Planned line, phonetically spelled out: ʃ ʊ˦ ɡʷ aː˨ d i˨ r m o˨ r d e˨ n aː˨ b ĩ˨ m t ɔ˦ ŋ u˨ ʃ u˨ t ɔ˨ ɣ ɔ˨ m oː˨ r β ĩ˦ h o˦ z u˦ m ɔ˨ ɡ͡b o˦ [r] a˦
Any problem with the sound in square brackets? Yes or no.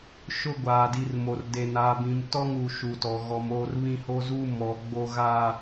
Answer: yes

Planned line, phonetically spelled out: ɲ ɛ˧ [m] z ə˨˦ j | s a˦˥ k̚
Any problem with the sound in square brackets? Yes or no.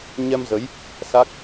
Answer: no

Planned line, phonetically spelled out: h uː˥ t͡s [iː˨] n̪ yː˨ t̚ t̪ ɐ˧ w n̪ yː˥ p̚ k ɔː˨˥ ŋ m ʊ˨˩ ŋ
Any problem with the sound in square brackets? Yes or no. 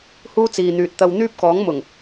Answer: no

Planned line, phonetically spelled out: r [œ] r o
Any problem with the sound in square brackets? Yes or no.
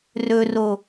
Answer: yes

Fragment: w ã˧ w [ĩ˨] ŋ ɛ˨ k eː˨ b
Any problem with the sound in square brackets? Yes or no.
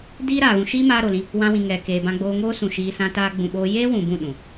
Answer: no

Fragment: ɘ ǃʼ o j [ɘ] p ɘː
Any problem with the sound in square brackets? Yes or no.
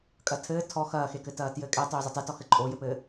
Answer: no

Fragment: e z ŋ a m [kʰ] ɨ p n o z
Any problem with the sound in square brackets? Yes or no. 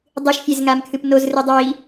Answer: no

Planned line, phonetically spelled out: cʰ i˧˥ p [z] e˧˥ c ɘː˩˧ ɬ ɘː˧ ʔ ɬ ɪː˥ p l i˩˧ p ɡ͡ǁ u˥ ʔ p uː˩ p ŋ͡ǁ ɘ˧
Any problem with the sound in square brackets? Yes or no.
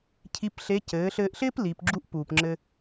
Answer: yes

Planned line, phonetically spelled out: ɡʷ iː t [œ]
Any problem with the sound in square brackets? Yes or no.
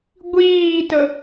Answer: yes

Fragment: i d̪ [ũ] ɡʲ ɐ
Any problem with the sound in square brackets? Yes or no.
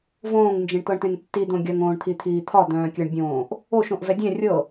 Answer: yes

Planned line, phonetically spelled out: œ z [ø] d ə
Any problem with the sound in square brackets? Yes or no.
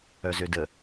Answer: no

